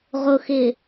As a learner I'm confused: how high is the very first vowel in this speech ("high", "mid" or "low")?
high